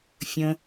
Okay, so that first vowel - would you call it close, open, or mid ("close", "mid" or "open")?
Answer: mid